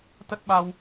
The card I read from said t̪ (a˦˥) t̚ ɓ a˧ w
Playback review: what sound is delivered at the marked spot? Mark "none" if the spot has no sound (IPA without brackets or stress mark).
ə˦˥